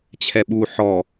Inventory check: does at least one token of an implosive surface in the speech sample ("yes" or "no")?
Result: yes